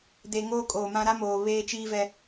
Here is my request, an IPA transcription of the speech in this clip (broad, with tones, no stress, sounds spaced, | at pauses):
d e˨ ŋ oː˦ kʼ oː˨ m ã˦ ɾ a˦ m oː˨ β eː˦ t͡ʃ iː˦ v ɛ˦